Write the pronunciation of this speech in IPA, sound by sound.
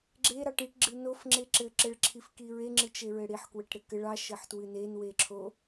ɡ͡ǁ e ɾ ɑ ʈ i ʈ ɡ͡ǁ ɨ n o f ŋ͡ǁ e ǁ ɘ ǁ ɘ ɭ ǁʰ i f k i ɹ e ŋ͡ǁ ɨ t͡ʃ e ɹ ɘ ɽ i ħ k w ɘ ʈ ɾ ɘ k ɘ ɭ ɑ ʃ ɘ ħ t w ɨ n e n w e ǁʰ o

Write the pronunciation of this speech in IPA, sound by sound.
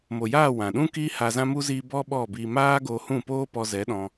m o˨ j aː˦˨ w ã˨ ɗ ũ˦ k i˦ h a˧ z ã˦ m u˦ z i˧ b ɔ˦ ɓ ɔ˦˨ b i˧ m aː˦ ɡ o˧ h ũ˦˨ p oː˦ p ɔ˧ z ɛ˨˦ ɗ ɔ̃˧

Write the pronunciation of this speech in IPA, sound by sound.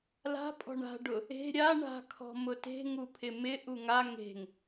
l a̤ pʼ ɔ̤ ɳ a̤ ɖ ʊ | e̤ ɾʲ a ɳ a̤ kʰ ɔ̤ m ʊ t e̤ ŋ u pʰ ɪ m ɪ ʔ u ŋ a ŋ e̤ ŋ

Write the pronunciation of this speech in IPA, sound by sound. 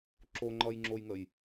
ǁ o ŋ͡ǃ ʌ j ŋ͡ǁ o j ŋ ə j

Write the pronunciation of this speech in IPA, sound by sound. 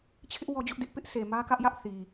t͡ɕʰ ɪ˦ ʔ w ɔ˦ d͡ʑ ʊ˦ ʔ d ɪ˦ ʔ p ɪ˦ ʔ s e˨ m ä˦ k ä˦ ʔ j ä˦ ʔ θ i˨

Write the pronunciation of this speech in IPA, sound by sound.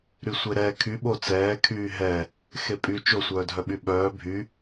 ɾ y sʷ e ɾ ɛ kʰ y ɓ o t͡s ɛː kʰ yː ɦ ɛ | x e pʼ y t͡ʃ o sʷ œː dʱ œ ɓ y ɓ œː bʱ y

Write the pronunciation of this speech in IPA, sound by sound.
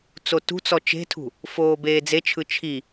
t͡s o t ṳ t͡s ɔ t͡ʃ e̤ tʰ ṳ | f oː b eː d͡z e t͡ʃʰ ɯ t͡ʃʰ i

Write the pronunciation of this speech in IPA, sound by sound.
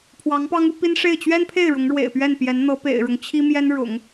pʰ w ɑ˧˥ ŋ p ɑ˥ ŋ u˥ p i˥ n ʂ e˥˩ ɪ̯ t͡ɕ ɥ ɛ˥ n pʰ e˥˩ ɪ̯ ɻ ʊ˧˥ ŋ ɻ w ḛ˨˩ ɪ̯ p ɥ ɛ˥˩ n p j ɛ˧˥ n n̪ ɤ˧˥ p ḛ˨˩ ɪ̯ ɻ ʊ˦ ŋ t͡ɕʰ i˥ m j ɛ˥ n ɻ ʊ̰˨˩˦ ŋ

